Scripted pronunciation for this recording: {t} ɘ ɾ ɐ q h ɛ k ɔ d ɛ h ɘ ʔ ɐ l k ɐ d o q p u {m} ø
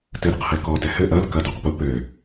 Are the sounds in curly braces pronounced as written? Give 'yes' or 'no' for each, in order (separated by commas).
yes, no